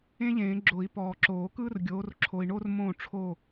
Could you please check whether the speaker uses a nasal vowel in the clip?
yes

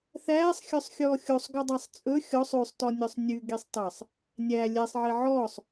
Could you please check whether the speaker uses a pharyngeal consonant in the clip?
yes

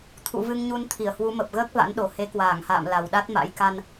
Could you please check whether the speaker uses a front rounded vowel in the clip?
no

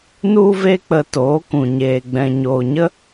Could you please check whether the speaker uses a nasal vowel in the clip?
yes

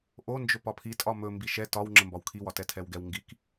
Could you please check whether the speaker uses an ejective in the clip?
yes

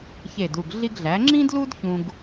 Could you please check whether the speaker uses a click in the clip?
yes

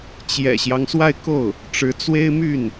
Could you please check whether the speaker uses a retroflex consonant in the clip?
yes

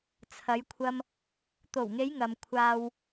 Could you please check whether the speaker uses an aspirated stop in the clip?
yes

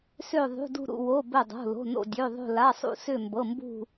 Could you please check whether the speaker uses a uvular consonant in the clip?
no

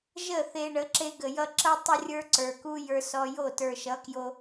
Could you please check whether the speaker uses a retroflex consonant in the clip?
yes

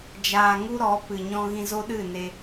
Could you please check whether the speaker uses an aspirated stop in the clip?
no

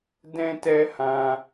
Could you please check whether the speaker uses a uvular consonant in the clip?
no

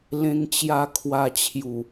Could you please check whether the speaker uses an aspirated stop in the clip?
yes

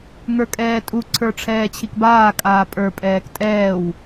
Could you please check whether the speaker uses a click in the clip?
yes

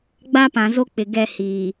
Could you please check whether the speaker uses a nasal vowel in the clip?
yes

